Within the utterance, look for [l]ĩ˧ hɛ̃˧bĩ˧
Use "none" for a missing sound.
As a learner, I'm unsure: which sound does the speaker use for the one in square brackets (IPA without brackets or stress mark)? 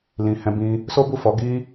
l